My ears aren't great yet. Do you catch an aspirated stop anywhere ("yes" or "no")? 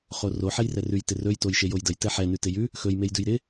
no